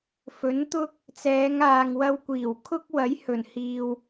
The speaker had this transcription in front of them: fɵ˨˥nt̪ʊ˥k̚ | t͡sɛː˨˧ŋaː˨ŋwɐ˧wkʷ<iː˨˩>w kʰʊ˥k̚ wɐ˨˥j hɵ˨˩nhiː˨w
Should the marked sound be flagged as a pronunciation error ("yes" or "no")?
no